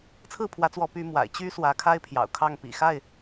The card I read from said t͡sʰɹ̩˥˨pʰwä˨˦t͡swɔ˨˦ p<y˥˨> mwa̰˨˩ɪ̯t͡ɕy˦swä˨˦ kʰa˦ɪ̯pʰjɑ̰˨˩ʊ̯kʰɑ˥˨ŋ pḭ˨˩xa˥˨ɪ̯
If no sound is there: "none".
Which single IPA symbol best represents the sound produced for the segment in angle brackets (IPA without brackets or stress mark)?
y˨˦